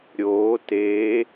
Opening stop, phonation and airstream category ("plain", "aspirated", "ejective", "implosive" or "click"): plain